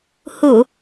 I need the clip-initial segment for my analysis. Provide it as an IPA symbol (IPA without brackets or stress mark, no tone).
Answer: h